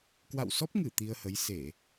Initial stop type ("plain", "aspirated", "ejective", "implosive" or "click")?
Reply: plain